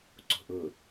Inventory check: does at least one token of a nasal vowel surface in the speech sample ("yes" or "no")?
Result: no